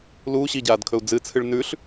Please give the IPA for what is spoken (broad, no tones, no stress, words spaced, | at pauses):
luː ɕiɟaːdkʰɵu̯ d͡zɨt͡sʰɨɭ nʉɬ